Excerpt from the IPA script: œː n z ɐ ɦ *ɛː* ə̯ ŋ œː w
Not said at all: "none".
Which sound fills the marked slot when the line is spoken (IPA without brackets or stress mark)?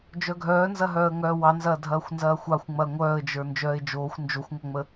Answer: œː